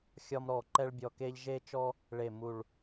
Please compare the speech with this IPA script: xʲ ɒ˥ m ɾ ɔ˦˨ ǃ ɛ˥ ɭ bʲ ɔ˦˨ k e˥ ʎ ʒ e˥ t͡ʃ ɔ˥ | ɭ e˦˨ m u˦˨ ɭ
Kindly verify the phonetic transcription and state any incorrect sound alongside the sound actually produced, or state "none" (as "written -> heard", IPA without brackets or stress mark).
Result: none